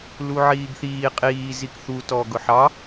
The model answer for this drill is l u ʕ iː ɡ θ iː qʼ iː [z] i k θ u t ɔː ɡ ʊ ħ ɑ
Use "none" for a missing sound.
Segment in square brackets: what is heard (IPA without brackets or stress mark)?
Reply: z